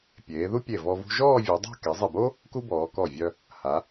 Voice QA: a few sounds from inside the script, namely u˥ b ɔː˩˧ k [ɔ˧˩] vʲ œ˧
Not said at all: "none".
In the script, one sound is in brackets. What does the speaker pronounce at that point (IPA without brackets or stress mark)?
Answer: ɔ˧˩